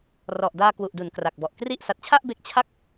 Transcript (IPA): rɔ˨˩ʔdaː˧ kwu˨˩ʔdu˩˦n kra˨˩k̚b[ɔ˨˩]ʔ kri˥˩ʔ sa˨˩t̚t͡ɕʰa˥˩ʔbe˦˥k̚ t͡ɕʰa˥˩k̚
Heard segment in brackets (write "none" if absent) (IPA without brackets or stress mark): ɔ˨˩